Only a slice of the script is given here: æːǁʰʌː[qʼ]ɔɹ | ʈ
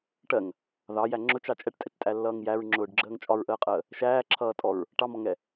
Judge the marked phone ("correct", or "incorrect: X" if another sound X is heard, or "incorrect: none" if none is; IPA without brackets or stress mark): incorrect: tʼ